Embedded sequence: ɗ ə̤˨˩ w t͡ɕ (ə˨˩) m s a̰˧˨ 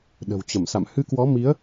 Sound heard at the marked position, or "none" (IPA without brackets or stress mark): ə˧˩